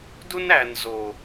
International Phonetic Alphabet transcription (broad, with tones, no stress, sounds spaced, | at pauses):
d u˦ n æ˨ n z o˨